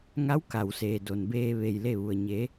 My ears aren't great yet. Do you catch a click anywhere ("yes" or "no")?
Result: no